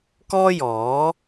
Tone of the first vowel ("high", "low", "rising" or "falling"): high